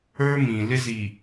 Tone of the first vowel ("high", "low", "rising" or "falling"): high